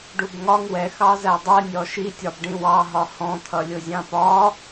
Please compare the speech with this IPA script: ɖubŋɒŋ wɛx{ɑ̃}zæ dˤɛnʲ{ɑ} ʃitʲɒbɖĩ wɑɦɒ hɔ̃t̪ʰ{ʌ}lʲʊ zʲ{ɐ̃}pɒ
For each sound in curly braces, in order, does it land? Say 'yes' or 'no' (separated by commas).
no, no, yes, no